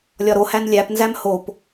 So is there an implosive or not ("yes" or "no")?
no